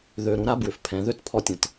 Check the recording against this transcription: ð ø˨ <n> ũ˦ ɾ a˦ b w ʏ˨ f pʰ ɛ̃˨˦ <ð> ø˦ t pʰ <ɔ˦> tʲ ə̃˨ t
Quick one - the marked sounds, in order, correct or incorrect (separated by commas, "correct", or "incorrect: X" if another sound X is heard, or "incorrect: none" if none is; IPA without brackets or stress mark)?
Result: incorrect: ɾ, correct, correct